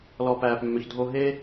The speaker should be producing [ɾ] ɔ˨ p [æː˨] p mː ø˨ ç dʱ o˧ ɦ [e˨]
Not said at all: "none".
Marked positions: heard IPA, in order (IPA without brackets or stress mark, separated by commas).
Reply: l, æː˨, e˦